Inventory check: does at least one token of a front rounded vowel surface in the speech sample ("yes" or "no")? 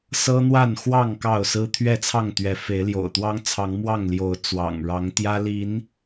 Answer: no